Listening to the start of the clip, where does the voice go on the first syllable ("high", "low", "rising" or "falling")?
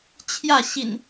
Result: falling